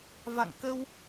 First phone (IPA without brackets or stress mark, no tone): v